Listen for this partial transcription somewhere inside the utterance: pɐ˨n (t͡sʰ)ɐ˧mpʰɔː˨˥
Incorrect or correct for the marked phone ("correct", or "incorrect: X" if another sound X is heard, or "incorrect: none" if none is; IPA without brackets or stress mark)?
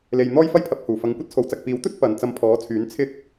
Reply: incorrect: t͡s